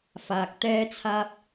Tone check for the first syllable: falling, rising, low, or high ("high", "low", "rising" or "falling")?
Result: low